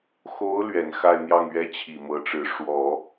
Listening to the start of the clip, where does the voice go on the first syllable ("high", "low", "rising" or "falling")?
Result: rising